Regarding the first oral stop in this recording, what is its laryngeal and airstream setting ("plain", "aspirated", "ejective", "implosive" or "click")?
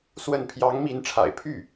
aspirated